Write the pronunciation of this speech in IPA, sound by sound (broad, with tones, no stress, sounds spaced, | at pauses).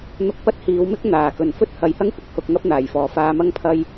n̪ ʊ˧ k̚ p ɐ˥ t̚ h iː˨˧ w m ɪ˥ k̚ n̪ aː˨˩ k ɵ˨˩ n f ɵ˥ t̚ h ɐ˨ j h ɐ˥ ŋ kʷ ɪ˨˥ k̚ h ʊ˧ k̚ ŋ ɐ˥ p̚ n̪ aː˨˩ j f ɔː˨˩ f aː˧ m ɐ˥ ŋ pʰ ɐ˥ j